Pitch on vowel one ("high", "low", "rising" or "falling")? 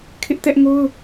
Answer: high